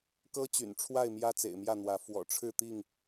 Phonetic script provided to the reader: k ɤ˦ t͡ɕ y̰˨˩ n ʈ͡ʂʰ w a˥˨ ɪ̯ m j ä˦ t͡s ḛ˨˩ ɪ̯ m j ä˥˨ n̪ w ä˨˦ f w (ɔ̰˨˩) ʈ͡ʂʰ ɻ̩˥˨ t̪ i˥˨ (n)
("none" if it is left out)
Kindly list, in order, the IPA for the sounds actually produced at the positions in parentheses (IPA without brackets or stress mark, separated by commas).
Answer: ɔ̰˨˩, ŋ